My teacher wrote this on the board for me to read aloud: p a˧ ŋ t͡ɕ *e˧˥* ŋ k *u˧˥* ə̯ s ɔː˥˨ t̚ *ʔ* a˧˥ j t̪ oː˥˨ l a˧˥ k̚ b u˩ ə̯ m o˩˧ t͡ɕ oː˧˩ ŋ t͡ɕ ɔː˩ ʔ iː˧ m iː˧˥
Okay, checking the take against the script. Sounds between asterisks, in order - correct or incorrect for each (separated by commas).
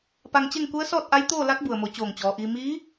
incorrect, correct, correct